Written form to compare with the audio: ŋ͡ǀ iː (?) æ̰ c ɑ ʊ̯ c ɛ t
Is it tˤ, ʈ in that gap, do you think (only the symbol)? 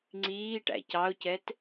ʈ